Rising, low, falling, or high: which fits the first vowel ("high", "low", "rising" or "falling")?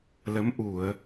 rising